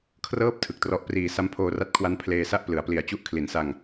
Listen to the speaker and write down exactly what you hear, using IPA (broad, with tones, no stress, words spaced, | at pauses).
kʰrɤː˦˥p̚ tʰɯ˨˩k̚trɔ˦˥ʔpriː˧ sa˦˥mpʰoː˧ra˦˥t̚kʰwa˦˥n pʰleː˧sa˥˩ʔ plɯ˩˦a̯pli˨˩a̯ t͡ɕu˦˥ʔkʰli˩˦nsa˧ŋ